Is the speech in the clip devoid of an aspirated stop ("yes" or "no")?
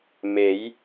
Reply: yes